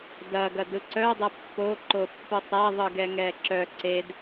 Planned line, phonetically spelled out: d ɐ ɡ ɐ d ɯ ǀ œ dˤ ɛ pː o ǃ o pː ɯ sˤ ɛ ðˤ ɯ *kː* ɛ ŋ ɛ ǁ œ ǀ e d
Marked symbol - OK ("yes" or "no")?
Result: no